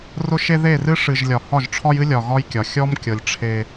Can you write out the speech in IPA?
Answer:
r ʊ˦ ʃ e˦ ð e˦˨ r ɨ˦ ʂ ɨ˨ ʒ lʲ ɒ˨ h ɒ˦˨ ʒ ʈ͡ʂʰ ɒ˦ j ɨ˦ lʲ ɒ˨ ɣ ɒ˦ j kʲ ɒ˨ xʲ ɔ˦ m kʲ ɤ˨ lʲ ʈ͡ʂʰ e˦

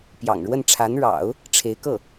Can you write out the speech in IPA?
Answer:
p j ɑ̰˨˩ ŋ ɻ w ə˥˩ n ʈ͡ʂʰ a˧˥ n ɻ ɑ̰˨˩˦ ʊ̯ | ʈ͡ʂʰ e˧˥ ɪ̯ k ɤ˥˩

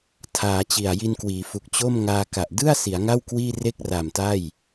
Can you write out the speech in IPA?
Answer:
tʰ aː˩˦ t͡ɕ i˨˩ a̯ j i˧ n k w iː˩˦ f u˨˩ k̚ t͡ɕ o˥˩ m ŋ aː˧ k a˨˩ ʔ d ɯ˥˩ a̯ s i˩˦ a̯ ŋ a˥˩ w k w iː˥˩ r e˥˩ k̚ r a˨˩ m t a˥˩ j

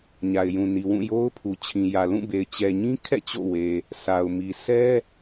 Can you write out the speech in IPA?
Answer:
ɲ a˨ ɪ̯ j ũ˨ n i˨ w ũ˦˨ j o˦ ʊ̯ pʰ u˨ t͡ɕʰ ĩ˨ j ä˨ l ũ˦˨ b e˨ ɪ̯ t͡ɕ ɛ˨ ɲ ĩ˦ kʰ ɛ̰˦˨ t͡ɕ o̰˦˨ w e˨ | sʰ a˨ ʊ̯ m i˨ s ɛ˦

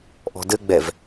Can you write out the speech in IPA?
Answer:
ʔ ɔ̤ d ɘ ɡ͡b ɛ v

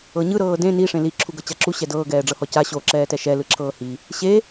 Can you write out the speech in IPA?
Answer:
ɤ ɲ ɯ ɾ ɤː d ẽ n i ʂ ẽ l i ǁʰ u ɡ ɤ t͡ɕ a ǁ u ɕ ɛ d ɤː ɡ ɛː ɖ͡ʐ ɤ h ɔ c a ɕ o ǁ ɛː t ɛ ʃ ɛ l ɯ ǁʰ ɤː h i | ɕ e

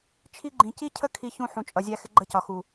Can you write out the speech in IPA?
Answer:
t͡ʃʰ i˦ ɡ͡ǃ ĩ˧ c i˦ cʰ ə˦ kʰ i˧ ç ũ˧ ħ ũ˨ t͡ʃʼ ʌ˨ zʲ æ˧ x ɪ˧ ɡ͡ǃ ə˧ c ɒ˨ x u˨

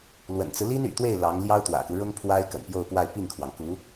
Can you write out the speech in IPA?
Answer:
l w ə̰˨˩ n t͡s ɹ̩˦ l i˥ n y̰˨˩ t̪ w e˥˩ ɪ̯ l ɑ˧˥ ŋ l j ɑ˥ ʊ̯ t̪ w ä̰˨˩ k u˦ ɻ ʊ˥ ŋ pʰ w a˥ ɪ̯ k ə̰˨˩ n p j o˥˧ ʊ̯ p w a˥˧ ɪ̯ p i˥˩ ŋ kʰ w ɑ˩ ŋ k u˧˥

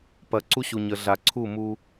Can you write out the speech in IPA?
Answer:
p ɐ˨ ǀ u˦ ɕ u˨ ɲ ə˨ ɮ a˨ ǀʰ u˦˨ m u˦

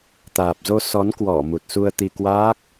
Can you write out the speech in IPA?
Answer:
t̪ aː˨˩ p̚ z o˧ s ɔ˨˦ n k w ɔ˧˩ m u˨˩ t̚ s u˧ ə̯ t̪ i˧ k w aː˦˥ k̚

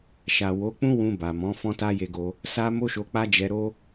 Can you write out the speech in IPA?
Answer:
ʃ a˨ w o˨˦ k͡p ũ˦ w ũ˧ b a˨ m ɔ̃˨˦ f ɔ̃˦ t a˦ j e˧ ɡ o˧ | s a˦ m o˦ ʃ o˧ k͡p a˦ d͡ʒ ɛ˧ ɾ o˦

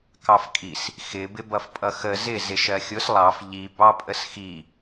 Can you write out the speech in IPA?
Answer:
k ɑ f kʼ i s | x ɪ b ɪ b ʌ f pʼ ʌ x ə z ɪ z ɪ ʃ ɜ xʲ ʊ s lˠ ɑ f ʎ i b ɑ pʼ ə s x i

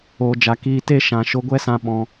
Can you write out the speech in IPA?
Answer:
oː˨ d͡ʒ a˨ k iː˧ t e˦ ʃ ã˨ ʃ o˧ ɡʷ ɛ˦ s ã˧ ɓ ɔ̃˧

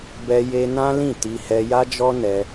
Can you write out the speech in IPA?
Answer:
b ɛ˦ j e˦ n ã˦ l ĩ˦˨ t i˧ h ɛ˧ j a˦ d͡ʒ ɔ˦ n ɛ˧

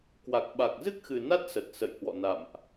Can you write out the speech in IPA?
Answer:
k w a˨˩ k̚ ɓ a˨˩ k̚ z ɨ˦˥ k̚ x ɨ˨˩ n a˦˥ t̚ s ə˨˩ t̚ s ə̰˧˨ j h w ɔ̰˧˨ n a̰˧˨ m ʔ

